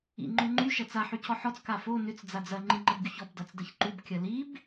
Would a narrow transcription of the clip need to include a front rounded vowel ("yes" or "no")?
yes